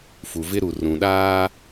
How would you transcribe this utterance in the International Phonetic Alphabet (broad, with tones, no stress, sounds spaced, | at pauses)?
f u˨ v ɪ˦ ɾ u˨ r ũ˨ ɗ aː˦